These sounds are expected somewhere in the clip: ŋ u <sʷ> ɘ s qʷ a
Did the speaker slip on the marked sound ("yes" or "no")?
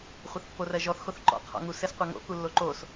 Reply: yes